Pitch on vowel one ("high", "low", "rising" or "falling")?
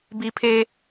high